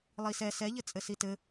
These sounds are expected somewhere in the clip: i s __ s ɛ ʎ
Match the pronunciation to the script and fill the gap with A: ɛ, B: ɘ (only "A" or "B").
A